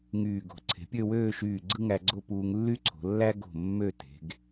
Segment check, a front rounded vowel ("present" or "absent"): present